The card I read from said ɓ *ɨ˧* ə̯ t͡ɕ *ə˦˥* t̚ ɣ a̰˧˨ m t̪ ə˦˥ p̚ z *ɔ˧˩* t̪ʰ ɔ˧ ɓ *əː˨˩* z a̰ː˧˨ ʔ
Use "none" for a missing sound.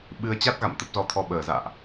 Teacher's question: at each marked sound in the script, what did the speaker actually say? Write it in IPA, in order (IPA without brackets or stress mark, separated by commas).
ɨ˧, a˦˥, ɔ˧, əː˨˩